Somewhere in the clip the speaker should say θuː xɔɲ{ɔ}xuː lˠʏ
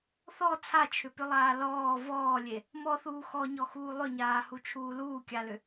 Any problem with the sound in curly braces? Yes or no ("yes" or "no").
no